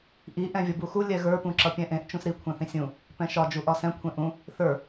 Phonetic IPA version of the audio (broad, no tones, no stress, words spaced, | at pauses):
ʔi ʔɛ̃vʲʌbuxu lʲɛɣə˞ pũǁʌpʲɛ̃ʔẽʔ t͡ʃũsɾi kʷʰɛ̃θĩsʲũ | pɛ̃ʃɒ d͡ʒuʔɒsɛ̃ kʷʰẽʔũ | θə˞